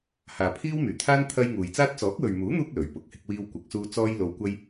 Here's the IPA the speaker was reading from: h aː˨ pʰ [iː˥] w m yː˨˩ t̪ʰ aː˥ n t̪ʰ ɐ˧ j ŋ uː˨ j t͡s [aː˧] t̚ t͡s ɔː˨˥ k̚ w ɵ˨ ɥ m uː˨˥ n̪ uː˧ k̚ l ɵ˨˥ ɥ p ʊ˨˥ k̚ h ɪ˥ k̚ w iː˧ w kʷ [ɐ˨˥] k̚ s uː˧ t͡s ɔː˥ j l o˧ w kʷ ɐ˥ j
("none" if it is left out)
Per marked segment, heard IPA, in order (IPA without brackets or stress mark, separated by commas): iː˥, aː˥, ɐ˨˥